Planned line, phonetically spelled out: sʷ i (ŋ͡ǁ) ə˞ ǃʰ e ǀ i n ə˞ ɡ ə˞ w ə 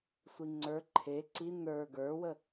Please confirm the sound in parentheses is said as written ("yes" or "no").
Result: no